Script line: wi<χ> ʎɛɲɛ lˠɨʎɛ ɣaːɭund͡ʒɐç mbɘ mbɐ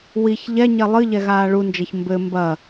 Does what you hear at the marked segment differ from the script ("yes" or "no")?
yes